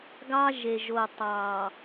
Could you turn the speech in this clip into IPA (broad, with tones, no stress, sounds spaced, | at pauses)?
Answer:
ɡ ɑ˦ ʒ e˨ ʒ o˨ tˤ ɑ˨